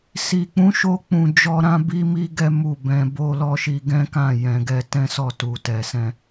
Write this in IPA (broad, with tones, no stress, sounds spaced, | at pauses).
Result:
s i˨ k͡p ũ˨˦ ʃ o˧ k͡p ũ˨ d͡ʒ ɔ˧ ɾ ã˦ b i˦ m i˦ ɡ ɛ˦ m u˦˨ b ɛ̃˧ b o˧ l ɔ˦ ʃ i˧ ɡ ɛ̃˦ k ã˦˨ j ɛ̃˨ ɡ ɛ˧ t ɛ̃˦ s ɔ˦˨ t u˨ t ɛ˨ s ɛ̃˧